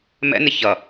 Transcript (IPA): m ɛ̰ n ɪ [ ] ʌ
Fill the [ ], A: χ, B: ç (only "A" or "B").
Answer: B